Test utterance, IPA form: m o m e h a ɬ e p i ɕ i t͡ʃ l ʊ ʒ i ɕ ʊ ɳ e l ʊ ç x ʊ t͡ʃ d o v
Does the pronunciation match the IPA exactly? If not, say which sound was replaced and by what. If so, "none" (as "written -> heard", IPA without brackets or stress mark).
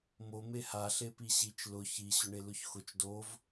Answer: ʒ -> ç